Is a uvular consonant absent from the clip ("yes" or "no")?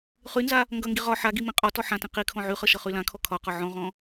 no